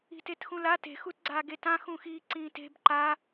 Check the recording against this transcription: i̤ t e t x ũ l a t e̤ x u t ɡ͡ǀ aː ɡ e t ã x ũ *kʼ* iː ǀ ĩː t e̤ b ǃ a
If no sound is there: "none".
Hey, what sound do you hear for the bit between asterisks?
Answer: x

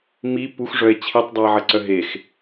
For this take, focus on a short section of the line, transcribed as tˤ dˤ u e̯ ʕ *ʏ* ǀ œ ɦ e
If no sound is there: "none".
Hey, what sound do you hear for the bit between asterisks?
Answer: ə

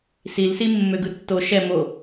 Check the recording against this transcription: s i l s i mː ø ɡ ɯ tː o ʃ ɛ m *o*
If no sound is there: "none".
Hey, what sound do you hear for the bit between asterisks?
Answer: o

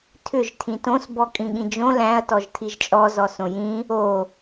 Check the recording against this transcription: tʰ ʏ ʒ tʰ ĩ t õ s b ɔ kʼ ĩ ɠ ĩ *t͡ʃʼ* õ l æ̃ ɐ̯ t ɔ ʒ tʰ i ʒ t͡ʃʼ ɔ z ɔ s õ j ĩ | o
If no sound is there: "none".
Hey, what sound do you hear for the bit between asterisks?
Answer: d͡ʒ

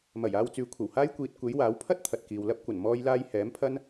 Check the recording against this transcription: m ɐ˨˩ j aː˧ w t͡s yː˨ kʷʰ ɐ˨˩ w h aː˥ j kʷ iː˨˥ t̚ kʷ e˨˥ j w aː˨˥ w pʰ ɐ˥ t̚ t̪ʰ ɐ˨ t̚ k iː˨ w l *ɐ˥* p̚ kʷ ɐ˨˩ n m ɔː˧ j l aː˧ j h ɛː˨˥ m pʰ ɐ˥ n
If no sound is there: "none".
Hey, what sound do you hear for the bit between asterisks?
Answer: ɐ˧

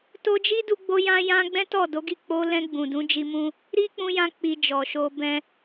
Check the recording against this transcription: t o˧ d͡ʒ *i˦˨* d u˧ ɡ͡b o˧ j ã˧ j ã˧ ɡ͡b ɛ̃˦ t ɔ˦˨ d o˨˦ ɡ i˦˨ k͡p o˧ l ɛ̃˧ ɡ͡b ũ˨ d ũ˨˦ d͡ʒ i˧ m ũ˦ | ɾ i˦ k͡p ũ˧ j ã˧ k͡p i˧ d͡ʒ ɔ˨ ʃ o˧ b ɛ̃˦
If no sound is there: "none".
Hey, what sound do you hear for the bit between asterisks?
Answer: i˦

